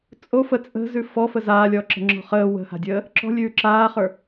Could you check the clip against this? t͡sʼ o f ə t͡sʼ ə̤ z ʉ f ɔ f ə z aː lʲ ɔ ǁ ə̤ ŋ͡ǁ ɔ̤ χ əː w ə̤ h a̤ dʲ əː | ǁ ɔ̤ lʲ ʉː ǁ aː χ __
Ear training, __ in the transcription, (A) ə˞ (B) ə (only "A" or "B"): A